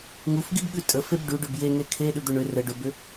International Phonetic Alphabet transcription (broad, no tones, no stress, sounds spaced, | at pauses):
ŋ u f ɡ i b ɠ ʉ tʼ ə f e b ɖ ʉ ɖ ʏ b j e ŋ e kʰ e ɗ ʉ d̪ ʏ ɳ ʏ r ə ɖ ʏ b ʏ